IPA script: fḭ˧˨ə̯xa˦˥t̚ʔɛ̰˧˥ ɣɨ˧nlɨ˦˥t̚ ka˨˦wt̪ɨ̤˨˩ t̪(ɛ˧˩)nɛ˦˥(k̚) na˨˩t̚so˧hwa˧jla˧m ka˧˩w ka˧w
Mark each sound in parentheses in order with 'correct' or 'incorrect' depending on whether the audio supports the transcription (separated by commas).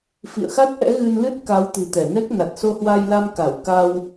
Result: correct, correct